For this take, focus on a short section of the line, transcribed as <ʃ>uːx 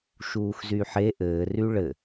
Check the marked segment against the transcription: correct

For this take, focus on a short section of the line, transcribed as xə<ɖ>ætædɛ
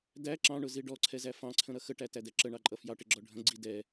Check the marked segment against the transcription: incorrect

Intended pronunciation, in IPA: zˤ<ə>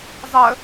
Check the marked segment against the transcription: correct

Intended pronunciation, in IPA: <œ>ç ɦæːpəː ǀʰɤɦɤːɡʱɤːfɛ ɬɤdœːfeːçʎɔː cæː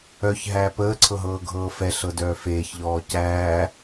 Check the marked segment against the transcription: correct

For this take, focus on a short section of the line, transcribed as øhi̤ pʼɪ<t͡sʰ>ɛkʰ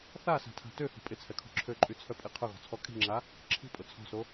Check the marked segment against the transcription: correct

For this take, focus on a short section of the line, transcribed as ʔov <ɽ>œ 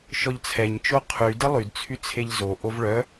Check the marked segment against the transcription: incorrect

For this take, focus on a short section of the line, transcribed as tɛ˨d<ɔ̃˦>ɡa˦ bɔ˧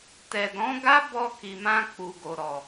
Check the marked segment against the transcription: incorrect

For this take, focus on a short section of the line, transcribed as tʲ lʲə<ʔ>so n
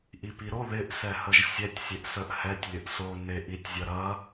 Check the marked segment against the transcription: correct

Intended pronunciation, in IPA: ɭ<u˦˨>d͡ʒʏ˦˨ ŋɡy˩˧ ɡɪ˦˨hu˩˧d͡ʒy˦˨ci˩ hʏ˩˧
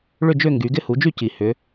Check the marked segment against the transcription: incorrect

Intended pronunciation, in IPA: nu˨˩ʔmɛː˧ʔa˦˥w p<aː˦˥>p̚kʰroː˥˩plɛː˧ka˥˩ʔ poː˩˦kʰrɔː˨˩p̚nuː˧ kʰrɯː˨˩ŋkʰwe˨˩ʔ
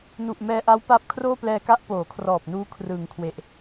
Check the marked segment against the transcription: correct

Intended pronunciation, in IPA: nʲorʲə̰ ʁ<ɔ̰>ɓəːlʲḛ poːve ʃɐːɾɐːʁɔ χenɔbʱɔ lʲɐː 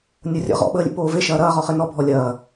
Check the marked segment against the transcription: correct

